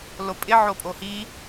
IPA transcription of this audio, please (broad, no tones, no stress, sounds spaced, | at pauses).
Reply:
l o pʼ ɪ ʕ o pʼ o h i